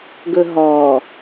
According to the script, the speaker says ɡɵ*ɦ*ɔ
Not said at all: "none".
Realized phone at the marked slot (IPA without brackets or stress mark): ɦ